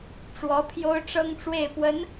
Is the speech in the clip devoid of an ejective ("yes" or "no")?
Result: yes